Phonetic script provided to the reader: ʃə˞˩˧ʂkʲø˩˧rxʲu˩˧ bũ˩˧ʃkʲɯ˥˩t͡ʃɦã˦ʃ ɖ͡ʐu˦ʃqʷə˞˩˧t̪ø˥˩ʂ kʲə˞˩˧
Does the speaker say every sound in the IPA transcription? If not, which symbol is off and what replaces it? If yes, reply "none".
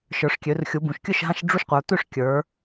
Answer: t͡ʃ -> ʃ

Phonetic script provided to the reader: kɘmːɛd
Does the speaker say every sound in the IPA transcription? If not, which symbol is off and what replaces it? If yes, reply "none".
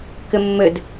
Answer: ɛ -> ɘ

